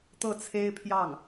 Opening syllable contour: falling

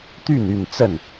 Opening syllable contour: falling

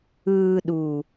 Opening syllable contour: low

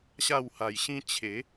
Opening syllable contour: falling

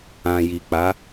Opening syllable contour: low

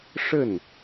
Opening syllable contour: falling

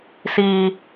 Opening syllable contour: high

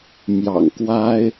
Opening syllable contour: low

